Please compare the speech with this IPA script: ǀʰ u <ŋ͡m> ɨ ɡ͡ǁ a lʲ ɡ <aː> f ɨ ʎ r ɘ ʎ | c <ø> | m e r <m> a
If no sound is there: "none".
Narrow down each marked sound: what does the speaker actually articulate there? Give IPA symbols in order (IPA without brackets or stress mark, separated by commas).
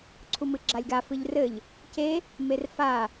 m, a, e, f